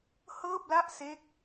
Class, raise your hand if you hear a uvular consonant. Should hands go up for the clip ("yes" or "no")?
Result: no